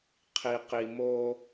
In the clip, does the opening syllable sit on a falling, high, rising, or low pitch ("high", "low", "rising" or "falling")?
low